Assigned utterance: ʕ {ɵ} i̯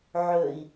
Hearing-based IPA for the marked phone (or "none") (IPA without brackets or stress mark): ɵ